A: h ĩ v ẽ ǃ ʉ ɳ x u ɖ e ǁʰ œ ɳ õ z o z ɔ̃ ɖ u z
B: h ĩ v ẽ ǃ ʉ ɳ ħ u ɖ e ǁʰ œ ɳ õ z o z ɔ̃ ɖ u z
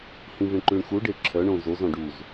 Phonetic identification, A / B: A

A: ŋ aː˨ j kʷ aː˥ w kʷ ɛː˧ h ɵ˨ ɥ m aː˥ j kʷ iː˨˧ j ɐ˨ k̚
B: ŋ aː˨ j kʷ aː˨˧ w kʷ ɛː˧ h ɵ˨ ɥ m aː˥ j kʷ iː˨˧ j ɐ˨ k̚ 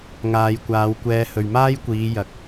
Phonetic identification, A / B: B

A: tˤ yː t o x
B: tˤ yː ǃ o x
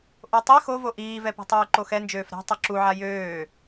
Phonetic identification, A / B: B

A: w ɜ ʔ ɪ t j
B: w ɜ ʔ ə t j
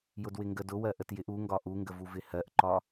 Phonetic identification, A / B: B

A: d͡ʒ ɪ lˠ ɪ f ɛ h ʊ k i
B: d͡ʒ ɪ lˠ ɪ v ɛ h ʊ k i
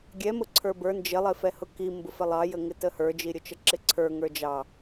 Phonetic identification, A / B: A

